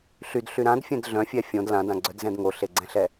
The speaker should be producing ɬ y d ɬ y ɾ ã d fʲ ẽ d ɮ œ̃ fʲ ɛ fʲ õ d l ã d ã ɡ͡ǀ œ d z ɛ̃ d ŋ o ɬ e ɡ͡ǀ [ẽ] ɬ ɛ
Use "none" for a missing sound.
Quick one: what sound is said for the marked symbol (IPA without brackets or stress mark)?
ɛ̃